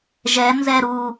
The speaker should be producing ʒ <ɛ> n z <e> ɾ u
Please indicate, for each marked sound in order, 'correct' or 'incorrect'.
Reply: correct, incorrect: ɛ

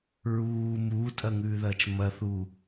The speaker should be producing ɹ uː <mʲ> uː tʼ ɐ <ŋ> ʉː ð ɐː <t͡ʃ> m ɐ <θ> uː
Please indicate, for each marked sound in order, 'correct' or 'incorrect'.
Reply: incorrect: m, correct, correct, correct

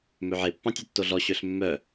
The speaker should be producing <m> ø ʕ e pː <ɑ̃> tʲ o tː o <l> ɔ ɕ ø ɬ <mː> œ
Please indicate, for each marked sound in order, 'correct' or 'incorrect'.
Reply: correct, correct, incorrect: ɮ, correct

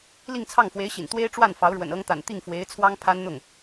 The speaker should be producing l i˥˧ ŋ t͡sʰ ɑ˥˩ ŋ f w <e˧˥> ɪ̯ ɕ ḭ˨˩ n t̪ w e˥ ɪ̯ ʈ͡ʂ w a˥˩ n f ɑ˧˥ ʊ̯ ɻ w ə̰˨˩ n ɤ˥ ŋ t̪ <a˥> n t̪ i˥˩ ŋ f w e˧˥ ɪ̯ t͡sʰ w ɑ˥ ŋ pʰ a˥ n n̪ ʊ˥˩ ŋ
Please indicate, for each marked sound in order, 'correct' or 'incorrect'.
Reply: correct, incorrect: a̰˨˩

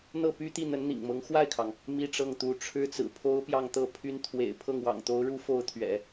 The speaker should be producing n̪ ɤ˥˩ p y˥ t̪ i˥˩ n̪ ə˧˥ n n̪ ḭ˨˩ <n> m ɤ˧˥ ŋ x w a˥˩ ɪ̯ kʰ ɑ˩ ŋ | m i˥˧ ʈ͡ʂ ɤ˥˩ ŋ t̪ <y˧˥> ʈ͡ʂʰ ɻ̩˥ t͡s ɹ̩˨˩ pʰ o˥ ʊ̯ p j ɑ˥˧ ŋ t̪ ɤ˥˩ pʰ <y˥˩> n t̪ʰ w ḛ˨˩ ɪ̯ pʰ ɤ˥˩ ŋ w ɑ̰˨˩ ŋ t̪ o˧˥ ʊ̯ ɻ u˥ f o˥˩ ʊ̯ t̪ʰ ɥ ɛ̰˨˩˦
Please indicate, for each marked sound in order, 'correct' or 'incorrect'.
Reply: incorrect: ŋ, incorrect: u˧˥, incorrect: y˥

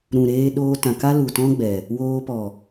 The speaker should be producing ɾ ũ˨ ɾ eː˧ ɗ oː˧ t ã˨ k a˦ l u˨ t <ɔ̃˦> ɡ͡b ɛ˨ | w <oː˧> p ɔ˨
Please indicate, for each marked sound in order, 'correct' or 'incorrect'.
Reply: correct, correct

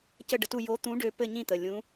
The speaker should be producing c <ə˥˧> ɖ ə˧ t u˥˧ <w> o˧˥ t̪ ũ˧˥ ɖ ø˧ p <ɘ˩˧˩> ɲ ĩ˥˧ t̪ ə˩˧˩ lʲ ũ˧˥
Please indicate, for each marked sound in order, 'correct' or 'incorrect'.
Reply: correct, incorrect: j, incorrect: ɘ˥˧

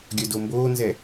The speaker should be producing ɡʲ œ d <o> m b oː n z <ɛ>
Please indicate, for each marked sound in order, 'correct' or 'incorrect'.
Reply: correct, correct

